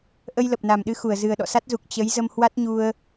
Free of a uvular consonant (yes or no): yes